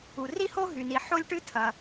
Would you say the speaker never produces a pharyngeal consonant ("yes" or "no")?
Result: no